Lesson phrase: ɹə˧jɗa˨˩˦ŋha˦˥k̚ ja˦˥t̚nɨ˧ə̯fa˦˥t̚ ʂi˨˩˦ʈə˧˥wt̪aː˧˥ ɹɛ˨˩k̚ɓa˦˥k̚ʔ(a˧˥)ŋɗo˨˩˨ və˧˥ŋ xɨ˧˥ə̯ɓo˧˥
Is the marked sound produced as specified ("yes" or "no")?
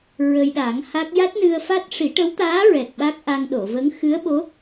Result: no